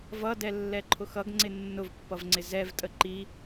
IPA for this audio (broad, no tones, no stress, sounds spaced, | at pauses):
v ʌ d ɛ lː ɛ ǃʰ ʊ x ʌ ɡ ŋ͡ǀ ɪ nː ʊ v pː ʌ v ŋ͡ǀ ɪ z ɛ v tʼ ə ǃ i